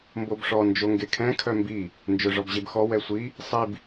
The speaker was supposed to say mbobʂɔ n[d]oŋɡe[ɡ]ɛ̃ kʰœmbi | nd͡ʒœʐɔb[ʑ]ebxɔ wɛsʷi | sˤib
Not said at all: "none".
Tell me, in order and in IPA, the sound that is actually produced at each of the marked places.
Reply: d͡ʒ, kʰ, ʑ

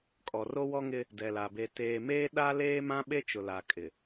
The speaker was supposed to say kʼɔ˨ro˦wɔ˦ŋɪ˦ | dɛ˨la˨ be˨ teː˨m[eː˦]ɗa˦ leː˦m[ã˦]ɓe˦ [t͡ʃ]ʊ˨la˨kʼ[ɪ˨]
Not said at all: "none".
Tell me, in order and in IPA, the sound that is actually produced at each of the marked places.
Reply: eː˦, ã˦, t͡ʃ, ɪ˨

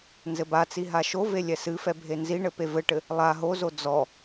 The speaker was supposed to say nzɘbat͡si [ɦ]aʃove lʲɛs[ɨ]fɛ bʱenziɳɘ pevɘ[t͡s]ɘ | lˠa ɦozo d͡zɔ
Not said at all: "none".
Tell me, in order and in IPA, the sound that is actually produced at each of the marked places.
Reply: ɦ, ɨ, ʈ

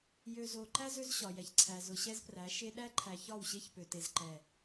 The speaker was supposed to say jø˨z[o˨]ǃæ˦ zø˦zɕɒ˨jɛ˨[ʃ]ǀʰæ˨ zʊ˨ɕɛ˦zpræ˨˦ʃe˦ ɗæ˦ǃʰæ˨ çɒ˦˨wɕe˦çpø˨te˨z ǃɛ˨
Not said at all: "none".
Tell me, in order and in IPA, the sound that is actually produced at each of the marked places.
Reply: o˨, ç

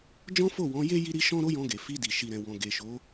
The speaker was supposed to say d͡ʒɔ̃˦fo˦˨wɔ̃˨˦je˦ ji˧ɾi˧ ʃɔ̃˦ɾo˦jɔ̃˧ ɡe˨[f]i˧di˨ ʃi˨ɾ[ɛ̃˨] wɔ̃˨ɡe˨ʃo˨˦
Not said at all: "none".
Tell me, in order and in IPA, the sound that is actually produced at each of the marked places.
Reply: f, ɛ̃˨

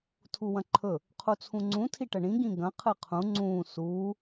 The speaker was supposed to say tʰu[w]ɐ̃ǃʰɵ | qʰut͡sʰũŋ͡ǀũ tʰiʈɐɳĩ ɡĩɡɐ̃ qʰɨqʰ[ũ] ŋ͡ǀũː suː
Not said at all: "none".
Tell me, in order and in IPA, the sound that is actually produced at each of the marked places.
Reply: w, ũ

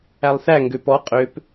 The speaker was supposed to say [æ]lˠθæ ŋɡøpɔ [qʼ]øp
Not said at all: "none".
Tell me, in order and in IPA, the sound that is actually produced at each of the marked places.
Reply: æ, qʼ

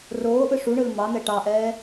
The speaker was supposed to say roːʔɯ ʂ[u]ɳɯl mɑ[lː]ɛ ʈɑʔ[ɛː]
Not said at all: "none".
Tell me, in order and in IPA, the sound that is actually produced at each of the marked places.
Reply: u, n̪, ɛː

